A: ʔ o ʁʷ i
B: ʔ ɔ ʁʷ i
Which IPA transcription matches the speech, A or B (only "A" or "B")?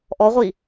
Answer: B